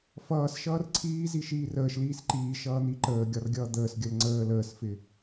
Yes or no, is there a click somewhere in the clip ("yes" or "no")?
yes